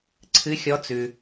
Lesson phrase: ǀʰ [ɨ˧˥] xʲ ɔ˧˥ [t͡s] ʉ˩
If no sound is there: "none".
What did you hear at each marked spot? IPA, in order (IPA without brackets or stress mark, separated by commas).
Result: ɨ˧˥, t͡s